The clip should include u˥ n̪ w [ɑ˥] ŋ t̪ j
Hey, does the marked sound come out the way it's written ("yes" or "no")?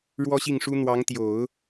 no